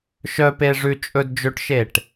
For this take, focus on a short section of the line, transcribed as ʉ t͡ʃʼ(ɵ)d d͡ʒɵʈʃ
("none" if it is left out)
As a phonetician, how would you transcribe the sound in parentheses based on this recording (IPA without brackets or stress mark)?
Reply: ɵ